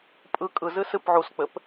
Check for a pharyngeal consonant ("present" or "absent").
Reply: present